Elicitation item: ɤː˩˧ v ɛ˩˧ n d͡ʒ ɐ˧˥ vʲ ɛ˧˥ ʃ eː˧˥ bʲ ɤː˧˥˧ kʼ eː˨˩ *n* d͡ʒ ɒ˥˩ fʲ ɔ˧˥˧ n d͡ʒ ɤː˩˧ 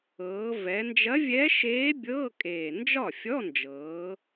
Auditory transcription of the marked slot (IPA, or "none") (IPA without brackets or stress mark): n